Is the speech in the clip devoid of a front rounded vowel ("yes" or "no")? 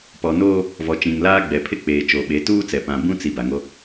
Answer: yes